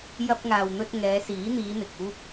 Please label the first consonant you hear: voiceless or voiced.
voiced